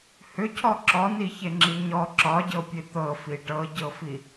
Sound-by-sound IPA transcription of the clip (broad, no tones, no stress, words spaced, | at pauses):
hʏcʰɔ ǁɔniçeŋ͡ǁi ɲɔ ǁɒɟɤpʲe t̪ɤfi ʈɤɟɤfi